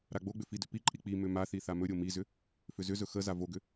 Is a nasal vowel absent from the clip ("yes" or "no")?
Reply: yes